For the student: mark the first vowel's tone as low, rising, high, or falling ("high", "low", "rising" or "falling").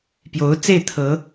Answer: rising